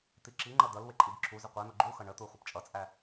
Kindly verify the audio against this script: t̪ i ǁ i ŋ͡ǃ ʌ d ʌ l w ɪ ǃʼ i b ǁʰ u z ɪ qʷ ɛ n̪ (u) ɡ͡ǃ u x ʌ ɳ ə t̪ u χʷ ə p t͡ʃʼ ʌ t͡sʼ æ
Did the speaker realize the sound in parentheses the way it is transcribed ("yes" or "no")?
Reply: no